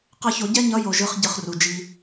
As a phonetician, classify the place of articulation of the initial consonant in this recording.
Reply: uvular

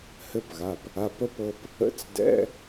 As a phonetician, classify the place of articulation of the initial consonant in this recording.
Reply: glottal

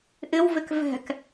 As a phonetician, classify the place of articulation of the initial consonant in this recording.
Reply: glottal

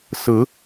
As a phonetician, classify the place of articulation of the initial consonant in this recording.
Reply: alveolar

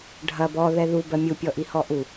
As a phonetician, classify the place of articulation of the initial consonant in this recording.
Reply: retroflex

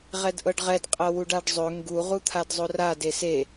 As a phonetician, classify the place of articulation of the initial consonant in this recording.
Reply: uvular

